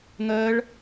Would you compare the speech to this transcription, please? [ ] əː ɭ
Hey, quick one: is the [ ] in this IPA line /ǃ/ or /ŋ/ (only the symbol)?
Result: ŋ